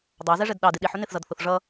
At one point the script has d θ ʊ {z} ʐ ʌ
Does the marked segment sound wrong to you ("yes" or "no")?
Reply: yes